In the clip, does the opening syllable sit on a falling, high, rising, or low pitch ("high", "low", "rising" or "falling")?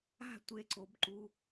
falling